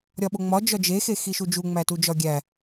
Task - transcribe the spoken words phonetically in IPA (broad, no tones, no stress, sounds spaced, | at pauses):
ɾʲ ɒ ɓ o ŋ͡m ɒ d͡ʒ ɒ d͡ʒ e x e x i ʃ u d͡ʒ u ŋ͡m æ t u d͡ʒ ɒ ɡʲ æ